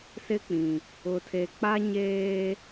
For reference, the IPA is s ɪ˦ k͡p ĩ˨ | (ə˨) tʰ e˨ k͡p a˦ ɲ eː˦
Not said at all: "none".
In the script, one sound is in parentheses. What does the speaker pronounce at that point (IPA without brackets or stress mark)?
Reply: ʊ˨